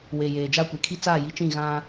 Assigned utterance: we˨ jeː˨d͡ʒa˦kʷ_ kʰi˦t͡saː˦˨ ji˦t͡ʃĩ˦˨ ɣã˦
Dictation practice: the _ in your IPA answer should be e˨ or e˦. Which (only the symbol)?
e˨